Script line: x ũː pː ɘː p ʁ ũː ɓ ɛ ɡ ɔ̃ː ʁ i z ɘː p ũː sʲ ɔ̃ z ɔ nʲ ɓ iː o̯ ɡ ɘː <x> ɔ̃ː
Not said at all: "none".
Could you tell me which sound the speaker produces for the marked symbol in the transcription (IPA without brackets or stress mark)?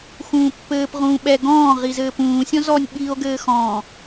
x